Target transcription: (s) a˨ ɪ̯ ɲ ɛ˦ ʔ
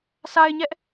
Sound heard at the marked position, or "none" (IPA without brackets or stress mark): s